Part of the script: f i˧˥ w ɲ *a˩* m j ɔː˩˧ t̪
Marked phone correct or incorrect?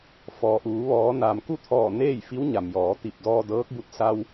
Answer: correct